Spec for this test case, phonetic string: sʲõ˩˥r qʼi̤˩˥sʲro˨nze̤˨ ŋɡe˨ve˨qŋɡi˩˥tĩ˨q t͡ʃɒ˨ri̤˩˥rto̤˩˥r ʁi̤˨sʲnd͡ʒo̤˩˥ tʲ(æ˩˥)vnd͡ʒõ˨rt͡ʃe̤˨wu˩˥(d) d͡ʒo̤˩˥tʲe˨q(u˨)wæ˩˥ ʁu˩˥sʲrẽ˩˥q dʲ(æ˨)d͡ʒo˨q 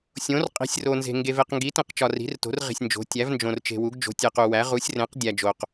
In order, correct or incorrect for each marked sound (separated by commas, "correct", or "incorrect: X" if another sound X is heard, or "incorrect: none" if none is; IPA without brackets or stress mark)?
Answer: correct, incorrect: ɡ, correct, correct